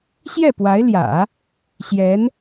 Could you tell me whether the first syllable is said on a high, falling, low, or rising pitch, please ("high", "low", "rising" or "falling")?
falling